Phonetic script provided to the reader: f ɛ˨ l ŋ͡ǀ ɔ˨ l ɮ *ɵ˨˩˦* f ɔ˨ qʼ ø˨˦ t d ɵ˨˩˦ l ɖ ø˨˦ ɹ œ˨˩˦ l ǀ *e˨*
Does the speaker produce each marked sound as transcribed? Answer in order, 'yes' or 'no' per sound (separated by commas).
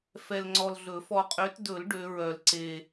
yes, yes